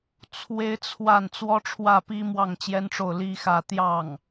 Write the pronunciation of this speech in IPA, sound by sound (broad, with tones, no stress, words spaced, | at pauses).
t͡sʰwe˥ɪ̯t͡sʰwa˥˩n t͡swɔ˥ʈ͡ʂʰwä˥˩pi˥mwɑ˥˩ŋ t͡ɕjɛ˥nʈ͡ʂo˥˩ʊ̯ li˥xä˥˧ t̪jɑ˥˩ŋ